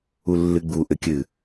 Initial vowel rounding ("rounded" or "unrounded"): rounded